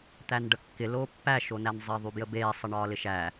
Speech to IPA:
t̪ æ n ɖ ə kː ɪ l oː pː æ ʃ o n æ n zˤ e ðˤ y b j ə b eː sˤ ə ɳ ɒː l ɪ ʃ æ

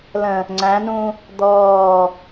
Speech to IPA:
l ə̃ | ŋ͡ǀ æ̃ n ũː | d̪ ɔː

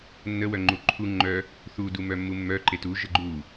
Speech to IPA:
nː ə w œ ŋ͡ǃ u ǃʰ u ŋ͡ǃ œ | θ u d u m œ mː u mː œ ǃ e t u ʒ ə ɡ͡ǃ u

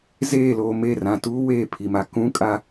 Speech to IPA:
z eː˦˨ l oː˨ m e˦˨ r ã˨ t uː˦ w eː˦˨ pʰ i˨ m a˨ k ũ˦ kʼ a˦

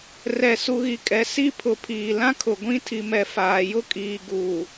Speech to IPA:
r ɛ˨ s u˨ ɣ i˨ kʼ ɛ˨ s i˦ pʰ ʊ˨ pʰ iː˨ l ã˦ kʰ ʊ˨ ɡʷ ĩ˦ tʰ i˨ m ɛ˨ f aː˨ j ʊ˦ kʼ iː˨ ɡ uː˨

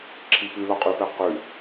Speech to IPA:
ǁʰ i p ʉ l ɒ qʼ ʉ p ɛ q ʉ

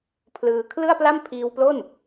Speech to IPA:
pʰ l ɯː˧ kʰ l ɯ˥˩ a̯ p l a˥˩ m pʰ iː˧ w p l o˥˩ n

